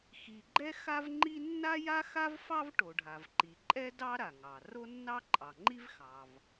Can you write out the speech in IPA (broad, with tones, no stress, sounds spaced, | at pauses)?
x i˩ ɡ͡ǃ ɛ˥ x a˥ v ŋ͡ǃ i˥ nː a˥ j a˥ x a˥ v f ɑ˥ v ʈ o˩ ɖʱ a˩ v ǃ i˩ ǃʼ ɛ˥ d ɑ˥ ɾ a˩ ŋ ɑ˩ r o˥ nː ɑ˥ ǃʼ ɑ˩ ŋ͡ǃ i˥ v x ɑ˩ v